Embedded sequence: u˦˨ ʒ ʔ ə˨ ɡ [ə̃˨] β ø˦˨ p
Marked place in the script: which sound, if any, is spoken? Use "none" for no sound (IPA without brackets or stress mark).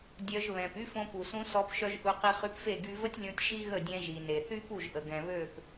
ɛ̃˨